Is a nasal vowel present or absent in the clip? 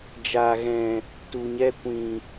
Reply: present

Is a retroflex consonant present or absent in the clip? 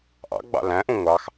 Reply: absent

